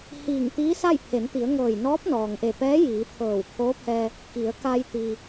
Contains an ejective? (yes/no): no